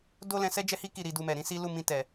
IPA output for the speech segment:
d o˦ l ɛ̃˧ s ɛ˦ d͡ʒ ɛ˦ h i˦ k i˦˨ ɾ i˧ d u˧ m ɛ˨ ɾ ĩ˨˦ s i˦ l u˦˨ m ĩ˧ t ɛ˨

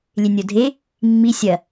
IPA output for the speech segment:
lʲ e nʲ o dʱ e | mː i sʲ ɐ

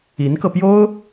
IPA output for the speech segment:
i˧˥ n k ɤ˧ p j o˥ ʊ̯

